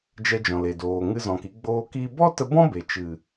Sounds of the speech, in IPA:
d͡ʒ ɛ˧ d͡ʒ ɔ̃˨ l e˨ d oː˨ ŋ ɨ˧ z ɔ̃˨ k i˧ ɡ͡b oː˧ k i˧ b ɔ˦ t ə˧ b ɔ̃˦ b e˨ t͡ʃ ɨ˨

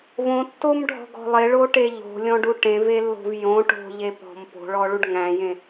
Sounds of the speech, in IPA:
v õ tː o m ɖʱ ɔ̤ ɡ ɔ̤ lˠ e ɭ o ʈ e ʎ o̤ lʲ ɔ̃ ɖ u ʈ ẽ v e lː o̤ v j õ ʈ o̤ ʎ e p ɔ̤ m p o̤ ɭ ɔ ɭ u ɖ ŋ æ̃ j ẽ

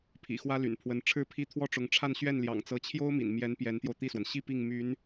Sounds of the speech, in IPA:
pʰ ḭ˨˩ x w ä˥ l y̰˨˩ n pʰ w ə˧˥ n ʈ͡ʂʰ ɻ̩˥ pʰ i˥˧ t̪ʰ w ɔ˥˩ ʈ͡ʂ ʊ˧˥ ŋ ʈ͡ʂʰ a˥˧ n ɕ ɥ ɛ˥˩ n l j ɑ̰˨˩ ŋ t͡s ɤ˧˥ t͡ɕʰ j o˥ ʊ̯ m ḭ˨˩ n m j ɛ˧˥ n p j ɛ˧˥ n t̪ j o˧ ʊ̯ t̪ i˥˩ s w ə˩ n ɕ i˥˧ p i˥˩ ŋ m y˧˥ n

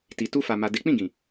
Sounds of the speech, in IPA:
t i˨ t u˧ f a˨ m a˨ d e˨˦ k͡p ĩ˦˨ ɡ ĩ˨

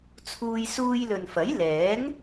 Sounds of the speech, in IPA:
t͡sʰ uː˧ j s uː˧ j l ɵ˨ n f ɐ˨˥ j l ɛː˨˥ ŋ

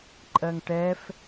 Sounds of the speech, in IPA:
ǃʼ ɜ ŋ ʈ ɛ f

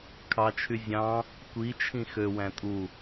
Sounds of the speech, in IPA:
kʰ ɑ t͡ʃʰ y zʲ ɑ̃ | kʷ i t͡ʃʰ ĩ x ø w æ̃ tʼ u

